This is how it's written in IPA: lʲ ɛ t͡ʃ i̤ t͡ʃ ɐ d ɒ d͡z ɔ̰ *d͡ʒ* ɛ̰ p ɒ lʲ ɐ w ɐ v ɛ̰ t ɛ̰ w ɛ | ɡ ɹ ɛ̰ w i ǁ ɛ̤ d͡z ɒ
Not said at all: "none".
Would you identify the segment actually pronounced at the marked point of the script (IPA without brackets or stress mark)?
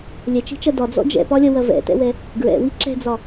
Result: d͡ʒ